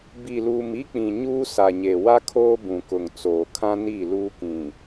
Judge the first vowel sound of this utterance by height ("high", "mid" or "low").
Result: high